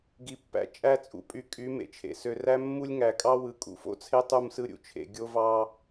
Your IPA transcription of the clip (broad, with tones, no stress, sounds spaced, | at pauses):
ɡ i˨ pː æ̰˨ t͡ʃʼ æ˦˨ t͡sʼ ṵ˨ pʼ y˨ kʼ y˨˦ m ḛ˨ t͡ʃʰ ḛ˨ s ø˨ r æ˦ mː u˦ lʲ ŋ æ˨ kʼ ɑ˦ w ɯ˨ kʼ ṵ˨ f o̰˦ t͡sʰ e˦ tˤ u˦˨ m s ɯ˦ ɾʲ ṵ˨ t͡ʃʰ ḛ˨ ɡʲ o˦ v ɑ˦